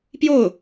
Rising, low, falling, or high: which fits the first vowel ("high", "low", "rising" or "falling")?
falling